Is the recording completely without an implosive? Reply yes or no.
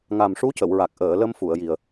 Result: yes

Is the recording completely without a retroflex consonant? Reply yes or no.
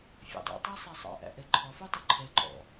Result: yes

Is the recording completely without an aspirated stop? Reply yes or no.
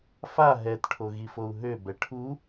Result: no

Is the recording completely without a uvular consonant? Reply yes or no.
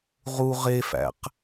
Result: no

